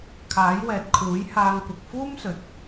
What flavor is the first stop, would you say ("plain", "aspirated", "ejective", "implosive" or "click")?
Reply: aspirated